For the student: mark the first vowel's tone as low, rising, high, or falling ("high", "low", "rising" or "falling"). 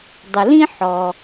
low